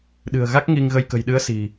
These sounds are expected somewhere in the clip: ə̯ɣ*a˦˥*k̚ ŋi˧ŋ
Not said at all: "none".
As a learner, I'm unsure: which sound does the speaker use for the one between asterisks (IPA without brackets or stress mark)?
a˦˥